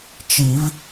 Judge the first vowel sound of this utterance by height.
high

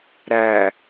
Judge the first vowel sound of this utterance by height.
low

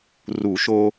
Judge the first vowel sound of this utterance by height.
high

